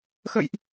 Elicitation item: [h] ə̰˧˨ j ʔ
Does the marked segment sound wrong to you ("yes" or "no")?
yes